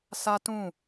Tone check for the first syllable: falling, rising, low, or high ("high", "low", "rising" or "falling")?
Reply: high